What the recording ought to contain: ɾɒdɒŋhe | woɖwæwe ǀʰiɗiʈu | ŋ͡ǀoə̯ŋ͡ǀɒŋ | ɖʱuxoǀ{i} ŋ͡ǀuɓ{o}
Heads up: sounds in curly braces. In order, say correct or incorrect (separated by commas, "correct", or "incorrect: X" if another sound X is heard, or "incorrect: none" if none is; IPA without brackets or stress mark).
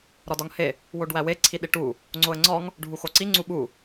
correct, incorrect: u